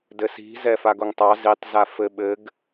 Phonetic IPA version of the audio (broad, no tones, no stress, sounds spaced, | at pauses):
d ɘ s i̤ z ɛ f a ɡ o ŋ tˤ ɑ z i tˤ z a f ɘ ɓ ɘ ɡ